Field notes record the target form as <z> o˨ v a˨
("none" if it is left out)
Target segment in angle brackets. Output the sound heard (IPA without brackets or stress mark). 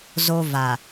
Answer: z